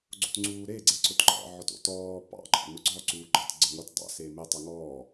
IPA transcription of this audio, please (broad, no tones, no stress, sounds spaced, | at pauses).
ɡ͡ǀ o̰ t ŋ͡ǀ uː ɾ e ɡ͡ǀ e ǀ ʊ t ǃ ɑ̰ ʕ ɔ t o̰ t ɔː p ɑ̰ ɡ͡ǃ ɑ̰ n ʊ ɡ͡ǀ ɔ ǀ uː ɡ͡ǃ ɑ t ɡ͡ǀ ə ŋ o t dˤ ɑ̰ s eː m e tˤ a ŋ ɔː